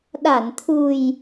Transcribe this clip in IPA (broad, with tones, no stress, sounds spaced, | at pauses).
ɗ a˧˩ n t̪ʰ u˨˩ j